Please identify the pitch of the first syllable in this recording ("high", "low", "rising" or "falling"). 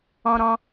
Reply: high